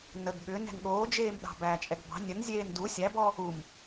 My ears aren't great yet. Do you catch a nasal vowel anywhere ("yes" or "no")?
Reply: no